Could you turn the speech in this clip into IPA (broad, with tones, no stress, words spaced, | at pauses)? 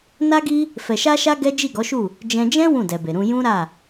na˦ɡi˦ | fɛ˨ʃa˧ʃa˧ ɡɛ˦ d͡ʒi˦˨ɡɔ˨˦ʃu˦˨ | d͡ʒɛ̃˧ d͡ʒɛ̃˦ wũ˦˨dɛ˨be˨ɾũ˧ jũ˦ɾa˦˨